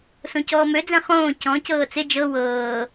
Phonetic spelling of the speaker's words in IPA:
sõcɔːmød͡zɛ̃ χõː cɔ̃cɤː t͡sɪ d͡ʒɤ wɤː

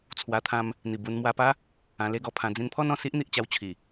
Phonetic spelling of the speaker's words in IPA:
t͡sʰwa˧t̪ʰã˧m | n̪i˨˩bu˧n mwa˧pa˦ | ã˧le˦ɡɔ˧pʰã˧ d͡zĩ˧npʰɔ˦nɔ̃˨˩si˦ʔ n̪i˨ʔt͡ɕa˦wt͡ɕʰi˨˩

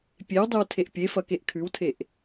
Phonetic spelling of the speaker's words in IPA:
pʲewdˤʉw tʰeʔpʲefɐ keʔkʰʉwtʰeʔ

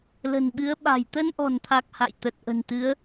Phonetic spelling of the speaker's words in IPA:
lə̤˨˩nɓɨ˨˦ə̯ɓa̤˨˩j t̪ə˧nʔɔ̤˨˩nt̪ʰa˨˩k̚ ha̰˧˨jt̪ə˨˩t̚ ʔə̤˨˩nt̪ɨ˨˦ə̯

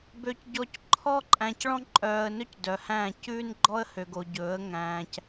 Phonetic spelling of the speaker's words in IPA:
bø˨cɟɔ˨c ǃʰɔ˦ǃʼæ̃˨c ɭɔ̃˦ǃʼœː˨ə̯nɵ˦c dœ˨hæ̃ː˦˨ cʉː˦nɡ͡ǃɔ˦ə̯ hø˨ɡo˨ɟɵː˨˦ə̯ ŋæ̃ː˨c

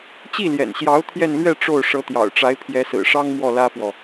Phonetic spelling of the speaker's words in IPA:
t͡ɕi˥˩ljɛ̰˨˩nɕjɑ˧˥ʊ̯ t̪ʰjɛ˥˧nlɥɛ˥˧ ʈ͡ʂo˥˩ʊ̯ ʂɤ˧˥t̪jɑ̰˨˩ʊ̯ʈ͡ʂa˧˥ɪ̯ pʰjɛ˧˥sɹ̩˨˩ʂɑ˥ŋ mwɔ˥˩lä˥fwɔ˨

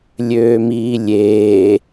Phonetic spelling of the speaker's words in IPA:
lʲøːmiːlʲeː

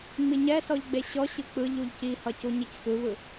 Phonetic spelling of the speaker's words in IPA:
ŋ͡miɲɛsɔʎ ɡ͡beɕɔɕɯ k͡pɯʎ uʎcihʌ cuɲicxɯβɯ

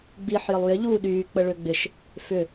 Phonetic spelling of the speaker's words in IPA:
ɡ͡biħ jɪlˠjɪ ʎuːɗyː k͡pəɭøɡ͡bɪʃ | fʏ

